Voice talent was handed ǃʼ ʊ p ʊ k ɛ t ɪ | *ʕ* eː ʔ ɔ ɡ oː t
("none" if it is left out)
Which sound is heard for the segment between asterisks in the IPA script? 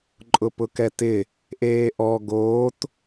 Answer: ʔ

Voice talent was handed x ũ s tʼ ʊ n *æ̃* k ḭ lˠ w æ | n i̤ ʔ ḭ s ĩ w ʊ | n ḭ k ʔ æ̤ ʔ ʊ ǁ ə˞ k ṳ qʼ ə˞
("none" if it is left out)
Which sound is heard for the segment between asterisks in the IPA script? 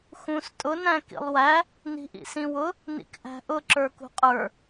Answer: æ̃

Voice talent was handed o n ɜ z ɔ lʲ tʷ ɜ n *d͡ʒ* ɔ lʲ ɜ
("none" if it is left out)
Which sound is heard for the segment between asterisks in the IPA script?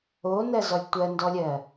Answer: d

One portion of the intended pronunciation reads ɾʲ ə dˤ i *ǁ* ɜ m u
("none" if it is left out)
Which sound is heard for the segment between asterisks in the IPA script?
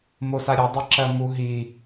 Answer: ǁ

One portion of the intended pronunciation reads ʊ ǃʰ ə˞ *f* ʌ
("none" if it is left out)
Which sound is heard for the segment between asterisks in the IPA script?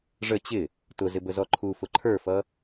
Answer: f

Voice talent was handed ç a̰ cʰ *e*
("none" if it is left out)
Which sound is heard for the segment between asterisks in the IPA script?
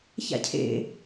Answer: ḛ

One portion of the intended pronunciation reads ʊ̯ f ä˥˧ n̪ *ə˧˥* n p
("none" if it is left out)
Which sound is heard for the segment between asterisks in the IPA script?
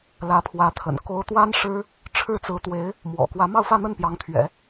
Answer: ə˥˩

